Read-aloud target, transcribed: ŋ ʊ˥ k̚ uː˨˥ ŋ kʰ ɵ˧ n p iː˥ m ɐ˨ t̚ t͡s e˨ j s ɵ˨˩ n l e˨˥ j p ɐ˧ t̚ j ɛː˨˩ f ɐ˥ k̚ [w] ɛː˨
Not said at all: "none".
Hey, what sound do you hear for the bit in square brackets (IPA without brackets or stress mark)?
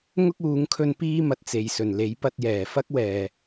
w